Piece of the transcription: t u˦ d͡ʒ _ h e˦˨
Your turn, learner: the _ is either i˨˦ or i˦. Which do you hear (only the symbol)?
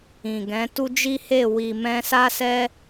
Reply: i˦